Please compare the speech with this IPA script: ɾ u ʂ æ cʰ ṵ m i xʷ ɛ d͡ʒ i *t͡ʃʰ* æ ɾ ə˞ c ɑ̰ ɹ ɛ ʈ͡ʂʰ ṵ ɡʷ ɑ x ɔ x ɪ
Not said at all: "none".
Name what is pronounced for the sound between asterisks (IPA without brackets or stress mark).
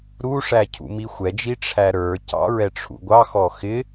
ʈ͡ʂʰ